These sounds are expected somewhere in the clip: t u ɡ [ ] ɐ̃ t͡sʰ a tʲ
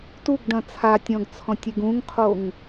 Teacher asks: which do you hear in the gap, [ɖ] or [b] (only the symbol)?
ɖ